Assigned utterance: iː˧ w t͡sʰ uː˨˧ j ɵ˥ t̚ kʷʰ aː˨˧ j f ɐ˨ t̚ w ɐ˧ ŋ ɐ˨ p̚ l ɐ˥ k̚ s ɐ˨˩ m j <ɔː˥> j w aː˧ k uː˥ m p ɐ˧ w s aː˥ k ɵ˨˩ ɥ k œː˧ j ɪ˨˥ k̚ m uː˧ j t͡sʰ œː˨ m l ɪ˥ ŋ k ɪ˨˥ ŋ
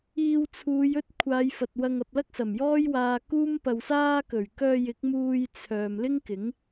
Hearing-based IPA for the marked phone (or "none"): ɔː˥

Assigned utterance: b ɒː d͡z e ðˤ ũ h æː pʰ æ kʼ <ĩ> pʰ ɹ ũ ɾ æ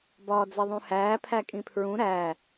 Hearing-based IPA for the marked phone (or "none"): ĩ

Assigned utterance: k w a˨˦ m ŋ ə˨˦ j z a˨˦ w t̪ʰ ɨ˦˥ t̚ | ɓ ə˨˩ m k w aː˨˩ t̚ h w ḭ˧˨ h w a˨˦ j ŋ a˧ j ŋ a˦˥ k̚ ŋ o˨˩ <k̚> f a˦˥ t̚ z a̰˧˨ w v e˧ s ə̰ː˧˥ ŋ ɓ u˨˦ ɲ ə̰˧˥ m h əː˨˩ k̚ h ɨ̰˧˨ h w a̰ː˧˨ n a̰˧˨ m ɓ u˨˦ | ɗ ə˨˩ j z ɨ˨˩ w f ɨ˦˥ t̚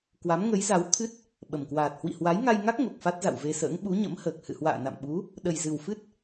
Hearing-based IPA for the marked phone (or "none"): k̚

